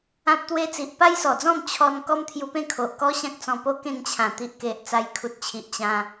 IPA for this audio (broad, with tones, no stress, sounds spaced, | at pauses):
ã˦ p̚ t̪ w e˦ t͡s i˨ ʔ p a˦ j s ɔ˨˩ d͡z ɔ̃˥˧ m t͡ɕʰ ɔ˧ n k ɔ˦ m t̪ʰ j u˧ p ẽ˥˧ kʰ o˨ ʔ k ɔ˦ ɕ ã˦ k̚ t͡s ɔ̃˧ p o˦ k ẽ˥˧ ŋ t͡ɕʰ ã˨˩ t̪ i˨ ʔ k e˨ ʔ t͡s a˧ j kʰ u˨ t̚ t͡ɕʰ i˨ ʔ t͡ɕ ã˧